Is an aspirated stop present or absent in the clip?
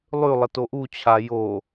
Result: present